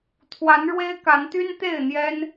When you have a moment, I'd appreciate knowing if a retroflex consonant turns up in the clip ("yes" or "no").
yes